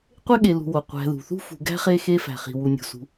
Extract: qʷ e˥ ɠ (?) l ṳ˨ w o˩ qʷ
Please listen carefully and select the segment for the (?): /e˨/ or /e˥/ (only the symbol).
e˨